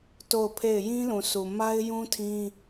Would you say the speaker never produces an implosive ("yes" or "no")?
yes